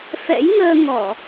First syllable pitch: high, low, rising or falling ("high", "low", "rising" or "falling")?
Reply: rising